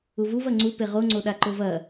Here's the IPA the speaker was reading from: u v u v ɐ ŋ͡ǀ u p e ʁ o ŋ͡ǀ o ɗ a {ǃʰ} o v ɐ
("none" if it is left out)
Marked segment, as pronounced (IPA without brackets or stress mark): ǃ